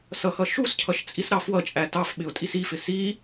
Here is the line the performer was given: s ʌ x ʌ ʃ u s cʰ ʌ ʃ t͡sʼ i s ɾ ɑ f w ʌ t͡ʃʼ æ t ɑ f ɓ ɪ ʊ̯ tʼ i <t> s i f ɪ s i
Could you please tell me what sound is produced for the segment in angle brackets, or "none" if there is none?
none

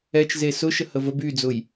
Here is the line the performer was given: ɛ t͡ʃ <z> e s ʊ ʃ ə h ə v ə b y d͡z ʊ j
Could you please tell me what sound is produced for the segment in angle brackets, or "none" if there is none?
z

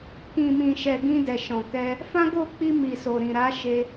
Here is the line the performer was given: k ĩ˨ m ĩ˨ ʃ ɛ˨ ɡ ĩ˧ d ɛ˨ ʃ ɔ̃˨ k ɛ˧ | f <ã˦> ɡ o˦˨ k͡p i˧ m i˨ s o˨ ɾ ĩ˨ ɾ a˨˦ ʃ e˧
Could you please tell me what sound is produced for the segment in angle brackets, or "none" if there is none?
ã˦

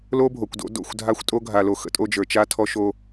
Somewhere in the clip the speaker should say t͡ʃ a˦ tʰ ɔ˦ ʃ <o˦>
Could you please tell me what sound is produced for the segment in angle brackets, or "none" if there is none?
o˦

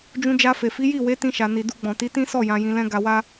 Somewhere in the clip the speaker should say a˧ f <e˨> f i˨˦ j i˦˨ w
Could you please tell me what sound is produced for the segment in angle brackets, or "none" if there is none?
e˨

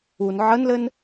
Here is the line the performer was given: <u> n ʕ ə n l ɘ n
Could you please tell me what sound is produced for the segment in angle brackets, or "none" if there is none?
u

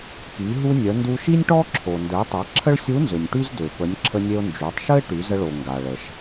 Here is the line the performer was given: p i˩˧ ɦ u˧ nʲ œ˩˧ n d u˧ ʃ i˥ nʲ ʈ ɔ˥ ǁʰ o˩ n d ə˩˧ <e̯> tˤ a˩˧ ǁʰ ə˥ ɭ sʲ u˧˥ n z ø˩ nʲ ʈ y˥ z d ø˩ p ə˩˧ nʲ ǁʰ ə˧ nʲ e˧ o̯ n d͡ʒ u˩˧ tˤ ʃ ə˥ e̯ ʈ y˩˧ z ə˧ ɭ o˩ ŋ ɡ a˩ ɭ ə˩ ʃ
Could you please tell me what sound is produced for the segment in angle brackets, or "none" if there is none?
e̯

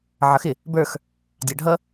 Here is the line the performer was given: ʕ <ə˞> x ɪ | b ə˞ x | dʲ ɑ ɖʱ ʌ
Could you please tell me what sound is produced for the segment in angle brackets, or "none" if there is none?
ʌ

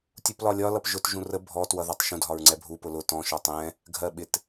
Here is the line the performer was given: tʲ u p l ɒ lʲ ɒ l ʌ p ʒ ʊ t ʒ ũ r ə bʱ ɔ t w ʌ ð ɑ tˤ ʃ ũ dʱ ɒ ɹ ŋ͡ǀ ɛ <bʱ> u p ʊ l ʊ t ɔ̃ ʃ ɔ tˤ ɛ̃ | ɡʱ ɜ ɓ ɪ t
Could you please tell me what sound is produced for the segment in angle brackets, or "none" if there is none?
bʱ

